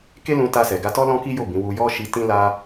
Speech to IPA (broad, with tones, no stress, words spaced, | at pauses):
ke˦lũ˧ta˧sɛ˨ ɡa˧tɔ˦ lɔ̃˦ki˦jo˦˨ bĩ˨˦ wu˧jɔ˦ ʃi˧ tĩ˦la˦